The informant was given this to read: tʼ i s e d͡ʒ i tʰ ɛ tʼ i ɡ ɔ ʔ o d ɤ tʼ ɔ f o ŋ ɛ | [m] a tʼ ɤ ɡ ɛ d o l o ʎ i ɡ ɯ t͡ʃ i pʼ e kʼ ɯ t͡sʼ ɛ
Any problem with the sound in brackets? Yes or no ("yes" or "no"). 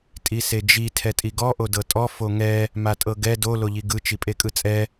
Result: no